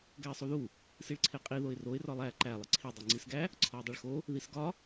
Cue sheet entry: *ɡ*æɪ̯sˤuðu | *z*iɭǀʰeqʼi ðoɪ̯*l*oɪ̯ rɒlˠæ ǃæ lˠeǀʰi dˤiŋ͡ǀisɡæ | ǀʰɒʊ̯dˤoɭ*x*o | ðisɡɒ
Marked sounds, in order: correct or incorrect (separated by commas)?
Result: correct, incorrect, incorrect, correct